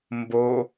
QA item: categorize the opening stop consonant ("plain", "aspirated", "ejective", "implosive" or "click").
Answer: plain